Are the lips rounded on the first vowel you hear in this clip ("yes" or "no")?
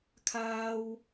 no